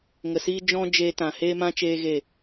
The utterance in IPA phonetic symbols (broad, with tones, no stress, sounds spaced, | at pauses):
ŋ ə˨ s iː˦ d͡ʒ ɔ̃˦ d͡ʒ eː˧ t ã˨ h eː˦ m ã˦ t͡ʃ eː˦ ɣ e˦˨